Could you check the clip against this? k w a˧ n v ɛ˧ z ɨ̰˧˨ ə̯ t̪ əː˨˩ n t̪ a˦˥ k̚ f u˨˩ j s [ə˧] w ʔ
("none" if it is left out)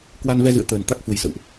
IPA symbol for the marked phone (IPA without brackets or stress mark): ə̰˧˨